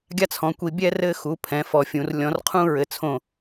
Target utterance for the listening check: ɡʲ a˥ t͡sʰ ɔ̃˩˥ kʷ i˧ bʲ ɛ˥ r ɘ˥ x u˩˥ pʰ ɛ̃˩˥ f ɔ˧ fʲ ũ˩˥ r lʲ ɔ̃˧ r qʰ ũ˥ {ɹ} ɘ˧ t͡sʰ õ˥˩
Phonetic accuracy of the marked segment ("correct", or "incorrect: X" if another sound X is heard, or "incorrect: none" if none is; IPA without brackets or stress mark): correct